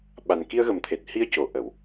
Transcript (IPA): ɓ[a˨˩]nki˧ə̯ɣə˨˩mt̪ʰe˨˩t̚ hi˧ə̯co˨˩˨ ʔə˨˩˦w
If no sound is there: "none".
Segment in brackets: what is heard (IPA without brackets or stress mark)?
a˨˩